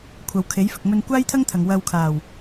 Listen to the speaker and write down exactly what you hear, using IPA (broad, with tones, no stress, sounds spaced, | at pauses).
kʷʰ ɐ˨ w kʰ e˨˥ j f ɪ˨ k̚ m ɵ˧ n kʷ aː˥ j t̪ʰ ɐ˥ ŋ t̪ʰ ɐ˨ ŋ w ɐ˧ w kʰ aː˨˩ w